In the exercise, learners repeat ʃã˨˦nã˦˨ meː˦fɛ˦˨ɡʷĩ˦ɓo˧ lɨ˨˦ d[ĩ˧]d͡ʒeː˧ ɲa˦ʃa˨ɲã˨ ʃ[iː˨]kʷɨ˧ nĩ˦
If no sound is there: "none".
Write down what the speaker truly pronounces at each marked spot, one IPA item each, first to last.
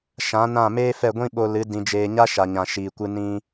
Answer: ĩ˧, iː˨

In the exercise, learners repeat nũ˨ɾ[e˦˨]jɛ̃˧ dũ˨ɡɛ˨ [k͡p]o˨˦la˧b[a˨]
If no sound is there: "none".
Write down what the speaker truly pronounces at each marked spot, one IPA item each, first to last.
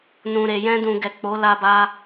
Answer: e˨, k͡p, a˧

